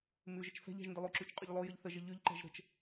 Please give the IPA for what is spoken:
mʉʒət͡ʃ fɛ̤ʎɛ̤ʒ ndəlˠoǁʉt͡ʃ qʼʉʎlˠojəʎ θəʒə ʎʉʎǃɛ̤ʒ ɾə̤t͡ʃ

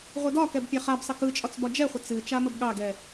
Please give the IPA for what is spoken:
ʁʷɨdɒkɛb pʲaχabsˤə kɯt͡ʃʼɒt͡s bɒd͡ʒɛχʷə t͡sɨ t͡ʃaməbɠɑɡɛ

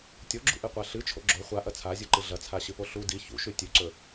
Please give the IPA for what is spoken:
tʲoɡ͡ǁṵʔɨqʷa ɬɨt͡ʃʰo̰ ɡ͡ǁo χʷaʔɐ t͡sʰazʲuǃɨ ɮɐt͡sʰaɕɨpo ɬu di çṵʃʉ tʲʉǀɵ

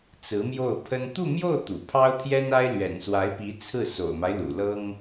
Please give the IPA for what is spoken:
t͡sɹ̩˧˥mjo˥˩ʊ̯pʰə˥n t̪u˥˧mjo˥˩ʊ̯ t̪ṵ˨˩pʰɑ˥ʊ̯t̪ʰjɛ˥na˥ɪ̯ lɥɛ̰˨˩nswa˧˥ɪ̯pi˧˥ t͡sʰɹ̩˥˩ so̰˨˩ʊ̯ma˦ɪ̯ lṵ˨˩lɤ˥ŋ

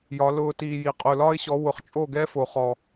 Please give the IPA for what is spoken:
jɒ˨˦lʊː˧ tiː˧ji˨ qʼʊː˨lɒ˦ɪ̯ɕɔ˨˦ wʊ˨χt͡ʃʼo˦˨ɡɛ˦ fo˨χɔ˨

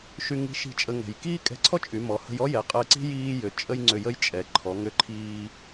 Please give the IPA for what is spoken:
ʃy˧ŋi̤˧˥ʃi̤˧ t͡ʃʼə˧ ŋɛ̤˩j kiː˥kʼɛ̤˧˥ǀʰɔ˥t͡ʃʼy˩˧ mɔ˩˧hə̤˧jɔ˥jɛ˩˧ qʼəː˧ǀi̤˥ jiː˧jʏ˩˧ t͡ʃʼə˥jŋ͡ǀʏ˧jə˥j t͡ʃʼɛ˩˧ǃʰɔ˩˧ŋʏ˧ǃʰiː˧

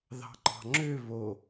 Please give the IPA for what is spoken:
ðɑ̤ŋ͡ǃɑ̤ŋ͡ǁø βo

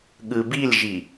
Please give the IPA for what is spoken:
ɠɯbilʒi

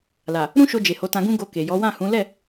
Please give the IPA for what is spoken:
la˨ | ɾũ˦ʃo˧d͡ʒe˨ ho˨˦tã˧ɡũ˦ ɡo˧ke˨jɔ˨˦ wã˦˨hũ˨˦ lɛ˦˨

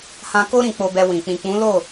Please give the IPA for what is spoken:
hã˧ko˦ ɾĩ˧k͡po˧bɛ˧wĩ˨ k͡pĩ˨k͡pũ˨˦lo˦˨

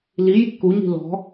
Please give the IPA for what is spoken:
liji̤ kuɲi̤ lɔ̤

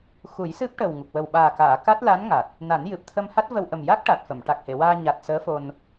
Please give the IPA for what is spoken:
xu˨˩˦j sɨ˦˥p̚ʈə˨˩wŋu˨˩k̚ wə˨˩wɓaː˨˩kaː˨˩˨ ka˦˥t̚la˧˥nŋa˨˩t̚ | na˨˩˦njɨ˨˩p̚t̪ʰə˧mha˦˥t̚ və˧wʔə˨˩m ja˦˥k̚ʈa˨˩t̚fə˨˩˨m ʈa˨˩k̚he˨˩˨waː˧ ɲa˨˩t̚ səː˧˥fo˧n

